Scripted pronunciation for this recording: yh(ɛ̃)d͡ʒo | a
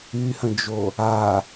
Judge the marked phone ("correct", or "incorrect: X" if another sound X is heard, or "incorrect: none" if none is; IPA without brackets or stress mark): incorrect: ə̃